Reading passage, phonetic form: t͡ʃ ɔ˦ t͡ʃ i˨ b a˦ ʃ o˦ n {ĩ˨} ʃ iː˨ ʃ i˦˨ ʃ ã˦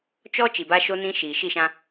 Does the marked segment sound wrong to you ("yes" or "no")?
yes